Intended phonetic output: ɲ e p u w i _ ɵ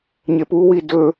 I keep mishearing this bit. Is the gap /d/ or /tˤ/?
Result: d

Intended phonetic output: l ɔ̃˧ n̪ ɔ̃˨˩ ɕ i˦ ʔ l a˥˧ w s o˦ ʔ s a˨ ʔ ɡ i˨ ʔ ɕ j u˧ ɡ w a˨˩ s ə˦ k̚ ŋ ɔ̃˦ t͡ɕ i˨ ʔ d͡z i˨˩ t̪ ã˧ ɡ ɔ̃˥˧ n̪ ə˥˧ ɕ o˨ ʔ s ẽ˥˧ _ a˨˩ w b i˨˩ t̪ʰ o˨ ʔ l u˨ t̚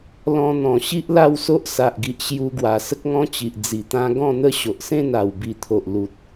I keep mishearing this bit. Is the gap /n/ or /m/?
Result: n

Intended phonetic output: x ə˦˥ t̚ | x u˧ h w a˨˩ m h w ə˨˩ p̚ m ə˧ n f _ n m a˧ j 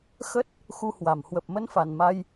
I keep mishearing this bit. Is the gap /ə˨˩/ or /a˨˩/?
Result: a˨˩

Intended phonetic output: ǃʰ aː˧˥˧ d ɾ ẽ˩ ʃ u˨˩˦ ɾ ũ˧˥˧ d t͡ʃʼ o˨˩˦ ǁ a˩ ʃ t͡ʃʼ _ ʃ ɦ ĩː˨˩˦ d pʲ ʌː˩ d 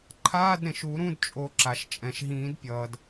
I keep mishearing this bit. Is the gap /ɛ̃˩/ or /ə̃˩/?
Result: ɛ̃˩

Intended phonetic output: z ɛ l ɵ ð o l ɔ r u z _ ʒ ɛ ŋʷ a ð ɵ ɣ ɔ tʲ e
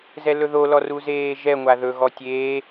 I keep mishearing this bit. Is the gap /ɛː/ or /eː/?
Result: eː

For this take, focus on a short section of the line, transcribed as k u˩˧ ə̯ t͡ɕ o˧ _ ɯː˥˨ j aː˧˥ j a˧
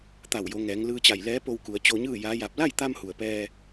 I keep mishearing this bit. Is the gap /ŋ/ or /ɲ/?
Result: ɲ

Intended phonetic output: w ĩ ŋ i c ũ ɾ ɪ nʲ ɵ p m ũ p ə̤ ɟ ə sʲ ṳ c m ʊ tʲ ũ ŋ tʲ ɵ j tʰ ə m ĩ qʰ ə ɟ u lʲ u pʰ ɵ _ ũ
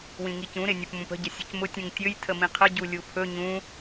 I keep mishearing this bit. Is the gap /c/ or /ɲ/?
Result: ɲ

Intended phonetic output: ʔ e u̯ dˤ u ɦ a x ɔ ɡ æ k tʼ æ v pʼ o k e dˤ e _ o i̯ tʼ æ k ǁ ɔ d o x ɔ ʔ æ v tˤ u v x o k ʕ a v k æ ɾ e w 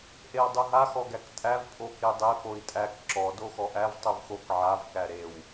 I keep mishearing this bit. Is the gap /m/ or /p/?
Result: p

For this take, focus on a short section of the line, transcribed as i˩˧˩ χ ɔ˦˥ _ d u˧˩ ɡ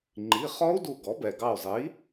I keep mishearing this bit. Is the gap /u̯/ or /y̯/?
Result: u̯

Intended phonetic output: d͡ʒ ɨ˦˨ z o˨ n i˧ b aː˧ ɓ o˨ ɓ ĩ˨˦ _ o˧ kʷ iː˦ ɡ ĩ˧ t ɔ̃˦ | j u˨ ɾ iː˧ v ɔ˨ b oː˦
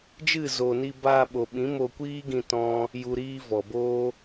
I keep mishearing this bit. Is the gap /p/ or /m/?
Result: m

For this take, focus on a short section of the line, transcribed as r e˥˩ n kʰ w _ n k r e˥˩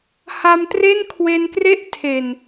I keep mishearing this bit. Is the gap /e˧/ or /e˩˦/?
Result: e˧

